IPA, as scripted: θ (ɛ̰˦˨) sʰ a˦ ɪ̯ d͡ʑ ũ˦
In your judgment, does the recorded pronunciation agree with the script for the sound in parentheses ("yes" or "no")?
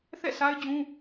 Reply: yes